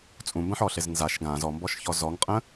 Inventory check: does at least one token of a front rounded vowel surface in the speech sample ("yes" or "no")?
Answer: no